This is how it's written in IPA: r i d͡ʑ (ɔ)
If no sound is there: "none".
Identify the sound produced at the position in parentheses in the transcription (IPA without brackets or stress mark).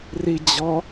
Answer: ɔ